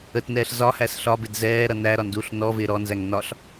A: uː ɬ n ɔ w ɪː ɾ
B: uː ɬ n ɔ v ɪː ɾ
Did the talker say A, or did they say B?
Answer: B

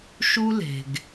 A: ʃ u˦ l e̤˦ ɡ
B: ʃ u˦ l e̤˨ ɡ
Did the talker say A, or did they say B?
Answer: B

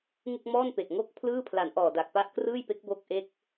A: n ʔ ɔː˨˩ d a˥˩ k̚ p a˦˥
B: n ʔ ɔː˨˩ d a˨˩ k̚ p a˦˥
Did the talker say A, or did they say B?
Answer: B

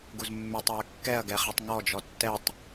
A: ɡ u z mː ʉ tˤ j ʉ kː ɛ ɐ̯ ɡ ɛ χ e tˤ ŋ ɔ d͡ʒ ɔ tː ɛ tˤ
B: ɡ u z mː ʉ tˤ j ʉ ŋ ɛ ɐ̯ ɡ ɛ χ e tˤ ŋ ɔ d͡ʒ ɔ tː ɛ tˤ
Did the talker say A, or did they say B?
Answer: A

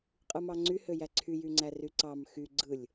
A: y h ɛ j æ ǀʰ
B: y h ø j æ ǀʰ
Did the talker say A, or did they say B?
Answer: B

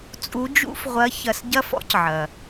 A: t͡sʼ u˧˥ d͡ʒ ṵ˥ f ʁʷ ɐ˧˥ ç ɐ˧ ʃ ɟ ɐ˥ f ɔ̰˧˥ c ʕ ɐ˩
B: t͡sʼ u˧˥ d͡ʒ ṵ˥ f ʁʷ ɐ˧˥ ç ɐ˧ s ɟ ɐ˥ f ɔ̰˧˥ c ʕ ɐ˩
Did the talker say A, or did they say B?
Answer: B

